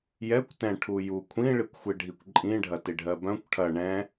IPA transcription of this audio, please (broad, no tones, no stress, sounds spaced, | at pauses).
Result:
j ɛ kʷ t ɛ̃ ʈʰ u j u kʷʰ ĩ ɭ i kʷ xʷ i ɖʱ i kʷ ǃʼ ĩ ɖʱ ɐ t i ɖʱ ɜ b œ̃ kʷ ʈʰ ɐ ɳ ɛ̃